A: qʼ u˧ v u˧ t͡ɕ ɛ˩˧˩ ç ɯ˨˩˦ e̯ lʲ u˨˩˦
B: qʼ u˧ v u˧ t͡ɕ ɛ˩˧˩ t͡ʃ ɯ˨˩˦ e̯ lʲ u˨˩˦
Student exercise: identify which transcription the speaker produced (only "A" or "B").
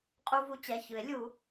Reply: A